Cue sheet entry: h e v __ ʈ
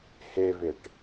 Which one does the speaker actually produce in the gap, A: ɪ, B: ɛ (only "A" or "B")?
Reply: A